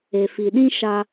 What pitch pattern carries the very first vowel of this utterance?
low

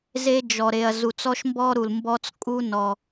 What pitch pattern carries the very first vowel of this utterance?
high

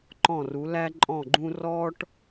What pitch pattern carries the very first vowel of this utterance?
falling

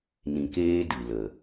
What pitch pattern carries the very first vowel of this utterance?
low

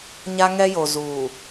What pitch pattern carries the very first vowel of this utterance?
high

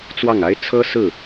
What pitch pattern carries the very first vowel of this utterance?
falling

